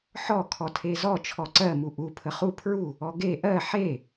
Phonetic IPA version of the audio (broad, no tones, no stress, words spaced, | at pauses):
ħɔ kʰɔtʰezɔ t͡ʃʰɔǀɜ muʔu pʰəχu pʰɹu | ɔɡe ʔɜ ħe